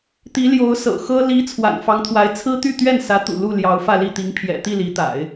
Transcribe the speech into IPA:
t̪ i˧˥ l j o˧˥ ʊ̯ s ɤ̰˨˩ x ɤ˥ l i˧˥ t͡sʰ w a̰˨˩ n f ɑ˧˥ ŋ t̪ʰ w a˧˥ ɪ̯ t͡sʰ ɹ̩˥ t̪ y˥˧ t̪ ɥ ɛ˥˩ n s ä˧˥ t̪ ṵ˨˩ l u˥˩ l j ɑ˧˥ ʊ̯ f ä˥˧ l i˥˩ t̪ i˧˥ ŋ pʰ j ɛ̰˨˩ t̪ i˥˩ l i˧˥ t̪ a̰˨˩˦ ɪ̯

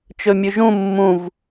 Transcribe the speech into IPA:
t͡ʃ ɵ mʲ ʉ ʒ ũ mː ũ v

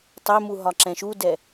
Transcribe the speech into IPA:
tˤ ɛ m u ɦ ɒ ǁ ɛ̃ ʃ u d ɛ

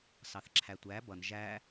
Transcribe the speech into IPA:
s ɑ θ ǁʰ æ tʷ æ b ʌ n ʒ æ

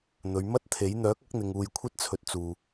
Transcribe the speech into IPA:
n̪ ɵ˨˧ ɥ m ɐ˥ t̚ t̪ʰ e˨˥ j n̪ œː˨˥ k̚ ɐ˨˥ k̚ n̪ ɪ˨ ŋ uː˨ j kʷʰ ɐ˧ t̚ t͡sʰ ɵ˨ t̚ t͡s uː˨

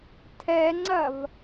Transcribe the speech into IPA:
tʰ ɛ ŋ͡ǀ ɐ v

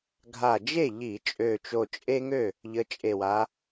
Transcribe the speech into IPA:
ɡʱ a˧˩ d͡ʒ e˥˩ ʎ i˧˩˧ t͡ʃʼ ø˧˩ t͡ʃ o˧˩ t͡ʃʼ e˦ ŋ ø˥˩ | ʎ ə˨˦ t͡ʃʼ e˧˩ w a˨˦

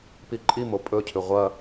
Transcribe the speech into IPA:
p i ǃʼ i m o pʼ ɵ cʰ ʉ ʁʷ ɐ

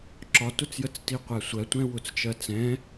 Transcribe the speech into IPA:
ǁ ɒ t ʊ t͡s j ə t͡s t i qʷ æ sʷ ɜ tʷ ɛ̃ w ʊ t͡s t͡ʃ ɜ t͡s ɛ̃

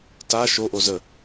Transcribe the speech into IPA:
t a ʃ o ʔ o z ə

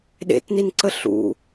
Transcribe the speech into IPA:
ɗ ḛ t n i n ǀ ə ɬ ṵ

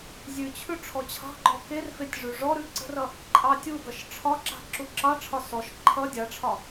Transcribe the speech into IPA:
zʲ ʉ t͡ɕʰ ʉ ʈ͡ʂʰ ɔ t͡ɕʰ ɑ̤ ɡ͡ǃ ɔ k e r f e tʲ ʐ ʉ ʐ ɔ ɾ ʉ ǀ ə̤ r ʌ | ǃʼ ɑ tʲ u ɡ ʌ ʃ ʈ͡ʂʰ ɒ ǁ a̤ ǁ u ǁ ɑ ʈ͡ʂʰ ɒ s ɔ ʃ ǃʰ ʌ dʲ a ʈ͡ʂʰ ɒ

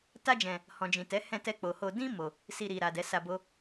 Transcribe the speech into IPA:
t a˦ d͡ʒ ɛ̃˧ | h ɔ̃˨ d͡ʒ ĩ˨ t ɛ˨˦ h ɛ̃˧ t ɛ˧ k͡p o˨ h o˧ d ĩ˦ m o˧ | s i˧ ɾ i˨ ɾ a˨ d ɛ˨˦ s a˧ b o˦

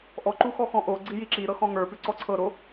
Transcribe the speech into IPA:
ʔ ɔ ǃ u x ɔ x ɔ̃ ʔ o ɡ͡ǀ i j i ǁ i ɾ ɤ x ɔ̃ ŋ ə˞ p ʉ ǀ ɔ ǀʰ ɤ ɾ o

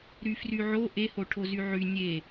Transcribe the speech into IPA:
ɾ y f r y ʕ o ʔ e h o ʈʰ o z y ʕ y nʲ e

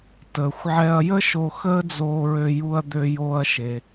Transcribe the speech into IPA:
t əː˩ xʷ ʕ ɛ˧ ɐ̯ j ə˥ ʃ o˧ x əː˥ d͡z oː˧ ɹ ø˧ j u˧ ɐ̯ d̪ ø˧ j oː˧ ɐ̯ ʃ e˩

